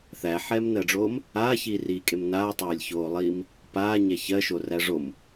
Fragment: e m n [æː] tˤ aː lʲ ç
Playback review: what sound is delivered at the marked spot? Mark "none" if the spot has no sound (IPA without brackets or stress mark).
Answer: aː